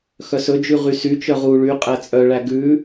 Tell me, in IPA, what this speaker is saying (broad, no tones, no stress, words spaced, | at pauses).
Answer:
xœsɵd͡ʒʉ ʁysyt͡ʃœʁ u ɭy qʼæt͡sʼœɭæ ɡʉ